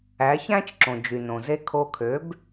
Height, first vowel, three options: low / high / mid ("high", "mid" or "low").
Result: low